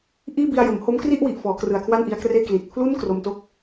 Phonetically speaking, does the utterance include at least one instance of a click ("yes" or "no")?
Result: no